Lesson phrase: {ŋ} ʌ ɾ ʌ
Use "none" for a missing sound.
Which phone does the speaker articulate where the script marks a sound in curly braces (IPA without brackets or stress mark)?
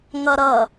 ŋ